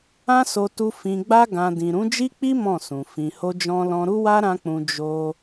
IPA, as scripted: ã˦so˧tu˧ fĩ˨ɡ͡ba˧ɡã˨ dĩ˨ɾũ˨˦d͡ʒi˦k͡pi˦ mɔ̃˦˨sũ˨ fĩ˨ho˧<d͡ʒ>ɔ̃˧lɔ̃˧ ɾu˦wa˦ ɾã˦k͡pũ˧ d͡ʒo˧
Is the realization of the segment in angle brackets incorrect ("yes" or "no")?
no